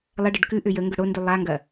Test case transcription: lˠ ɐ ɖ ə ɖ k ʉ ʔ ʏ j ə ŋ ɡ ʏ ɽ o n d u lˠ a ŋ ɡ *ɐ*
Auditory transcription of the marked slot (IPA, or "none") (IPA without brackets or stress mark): ɐ